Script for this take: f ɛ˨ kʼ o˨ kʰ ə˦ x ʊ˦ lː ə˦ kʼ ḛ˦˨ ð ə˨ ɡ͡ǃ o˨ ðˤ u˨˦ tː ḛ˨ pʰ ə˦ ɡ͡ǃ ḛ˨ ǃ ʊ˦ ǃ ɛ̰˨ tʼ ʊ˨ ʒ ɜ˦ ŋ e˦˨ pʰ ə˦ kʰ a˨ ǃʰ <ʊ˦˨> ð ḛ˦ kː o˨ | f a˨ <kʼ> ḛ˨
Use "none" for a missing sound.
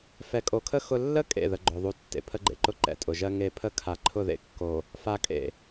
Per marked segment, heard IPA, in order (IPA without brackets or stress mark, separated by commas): ʊ˦˨, kʼ